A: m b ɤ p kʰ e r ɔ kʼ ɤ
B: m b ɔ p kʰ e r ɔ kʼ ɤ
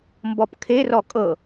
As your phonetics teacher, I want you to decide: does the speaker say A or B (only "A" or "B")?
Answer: B